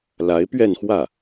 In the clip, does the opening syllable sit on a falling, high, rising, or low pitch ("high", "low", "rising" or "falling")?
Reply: rising